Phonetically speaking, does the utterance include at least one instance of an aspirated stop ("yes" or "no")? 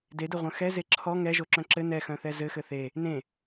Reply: yes